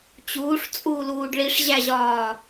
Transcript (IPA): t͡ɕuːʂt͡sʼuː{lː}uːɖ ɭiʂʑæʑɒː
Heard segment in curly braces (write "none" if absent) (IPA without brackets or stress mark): l